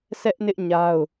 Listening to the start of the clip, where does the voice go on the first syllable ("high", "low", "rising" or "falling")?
high